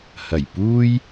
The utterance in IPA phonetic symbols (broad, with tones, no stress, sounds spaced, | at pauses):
h ɐ˨˩ j p uː˥ j